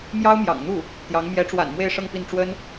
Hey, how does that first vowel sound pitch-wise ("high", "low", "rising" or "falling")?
high